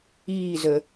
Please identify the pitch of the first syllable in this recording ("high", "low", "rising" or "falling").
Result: falling